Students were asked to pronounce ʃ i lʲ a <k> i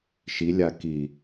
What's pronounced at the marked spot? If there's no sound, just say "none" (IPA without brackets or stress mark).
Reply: k